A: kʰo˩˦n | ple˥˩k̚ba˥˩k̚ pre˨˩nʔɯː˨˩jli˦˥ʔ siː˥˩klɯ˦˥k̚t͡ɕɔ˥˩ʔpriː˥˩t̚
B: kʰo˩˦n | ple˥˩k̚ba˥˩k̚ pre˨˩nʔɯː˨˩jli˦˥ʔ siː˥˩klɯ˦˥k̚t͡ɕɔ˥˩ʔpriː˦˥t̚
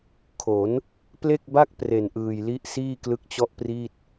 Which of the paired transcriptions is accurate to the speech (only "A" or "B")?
A